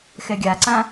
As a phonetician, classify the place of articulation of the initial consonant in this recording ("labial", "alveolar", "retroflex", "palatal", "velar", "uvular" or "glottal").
velar